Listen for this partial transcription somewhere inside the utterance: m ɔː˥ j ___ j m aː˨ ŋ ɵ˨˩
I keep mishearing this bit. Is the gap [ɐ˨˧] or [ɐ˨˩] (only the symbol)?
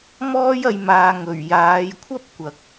ɐ˨˧